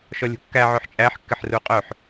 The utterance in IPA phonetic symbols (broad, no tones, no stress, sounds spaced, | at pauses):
ʃ ɔ lʲ ṳ kː æ ʕ œ ħ t͡ʃʼ æ ħ kː ɪ ħ r u qʼ œ ħ